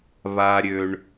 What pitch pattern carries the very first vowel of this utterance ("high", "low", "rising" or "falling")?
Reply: low